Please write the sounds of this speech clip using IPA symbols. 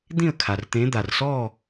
d̪ ĩ˥˨ ə̯ kʰ a˩ r t̪ ẽ˨˦ d̪ a˩ r s ɔ˥˨

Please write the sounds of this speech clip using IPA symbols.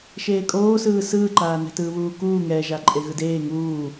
ʃ eː kʼ oː s ɯː s ɯː ǃ aː n ɛ̤ t ɯː β uː k uː ŋ ɛː ʒ a ǃʼ e ɣ ɯ d eː ŋ uː

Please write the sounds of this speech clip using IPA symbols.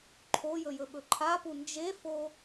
ǃʰ o j ɵ j ɵ ɓ ɵ ǃʰ a p u n d͡ʒ e f o

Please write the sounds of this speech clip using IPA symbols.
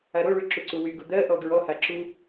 a ɾ o ɭ y ǁ u ǀ u w y ɡ u d̪ ɜ ʔ ɔ ɡ ɹ ɔ h a ǁ u

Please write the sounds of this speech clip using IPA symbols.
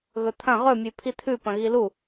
ɣ ɵ t̪ʰ ɐ̃ ʁ ɵ mʲ ʉ pʰ i t̪ʰ ʉ p ɐ̃ ɣ i l u

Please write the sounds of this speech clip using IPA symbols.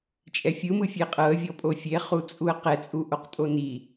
t͡ʃʼ ɛ fʲ ɯ m ɯ fʲ e qʼ ɤ ə̯ vʲ ɔ pʼ o fʲ e χ u t͡sʼ u ə̯ q ɛ t͡sʼ u ʔ o q tʼ o n i

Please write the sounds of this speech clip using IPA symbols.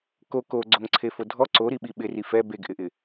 k o k o ɡ͡ǀ o ŋ ǀʰ e f o dʱ ɔ ǀ o ɾ i ɓ i ɓ ɪ r i f ɛ b e ɡ ʔ ɪ ʔ ɪ

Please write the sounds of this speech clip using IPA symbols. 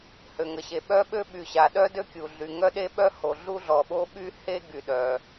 h ø˩ ŋ ə˩ ɕ e˩ ɓ œ˥ ɓ ø˥ ɓ y˩ ɕ a˩ ɗ œ˥ d ø˥ kʲ u˩ ɮ y˩ ŋ œ˥ ɗ e˥ ɓ œ˥ h o˩ ɮ u˥ ɮ ɔ˩ ɓ o˥ ɓ y˥ h e˥ ɡ y˩ ɗ œ˩

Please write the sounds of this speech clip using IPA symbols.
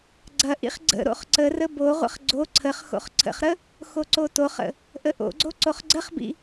ɡ͡ǀ ɐ ʔ ḭ χ ɡ͡ǀ ə̰ ɾ o̰ χ ǀ ə r ə b o ʁʷ ə̰ χ ɡ͡ǀ o ǀʰ ə χ x o̰ χ ǀʰ ə̰ χ ɾ ə | x o ǀ o t o χ ə̰ | ʔ ə ʔ o̰ ɡ͡ǀ o ǀ o χ ɡ͡ǀ ə χ b ḭ

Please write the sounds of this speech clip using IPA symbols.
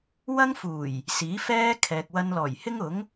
w ɐ˥ ŋ f uː˨˩ j | s iː˨˥ f ɛː˥ kʰ ɛː˨ k̚ w ɐ˧ n l ɔː˨˩ j h ɪ˥ ŋ ʊ˨˥ ŋ

